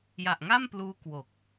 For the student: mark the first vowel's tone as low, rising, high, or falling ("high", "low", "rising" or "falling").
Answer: low